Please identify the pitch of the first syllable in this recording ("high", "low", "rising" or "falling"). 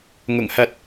low